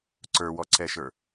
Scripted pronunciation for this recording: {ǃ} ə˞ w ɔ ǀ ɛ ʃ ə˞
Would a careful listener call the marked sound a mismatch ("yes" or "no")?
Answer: yes